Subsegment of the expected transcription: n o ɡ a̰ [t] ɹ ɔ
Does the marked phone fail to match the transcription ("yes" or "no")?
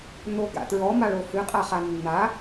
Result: no